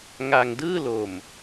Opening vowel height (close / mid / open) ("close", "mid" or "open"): open